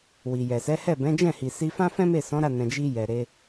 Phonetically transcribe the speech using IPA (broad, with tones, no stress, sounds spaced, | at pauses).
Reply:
w i˨ j ɛ˨ s ɛ˨˦ h ɛ˦˨ b ɛ̃˨˦ d͡ʒ ɛ̃˦˨ h i˨ s i˧ f ã˦ f ɛ̃˦ m e˦˨ s ɔ̃˨˦ ɾ a˦˨ n ɛ̃˨ d͡ʒ i˧ j ɛ˨ ɾ e˧